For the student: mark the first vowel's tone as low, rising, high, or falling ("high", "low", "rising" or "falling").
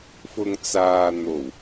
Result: low